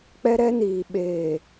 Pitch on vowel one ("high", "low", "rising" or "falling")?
high